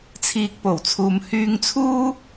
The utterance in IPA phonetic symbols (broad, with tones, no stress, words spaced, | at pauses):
t͡sʰiː˧k̚po˨˩wt͡sʰuː˨m hyː˧ŋt͡sʰuː˥